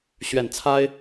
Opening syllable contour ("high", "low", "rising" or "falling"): low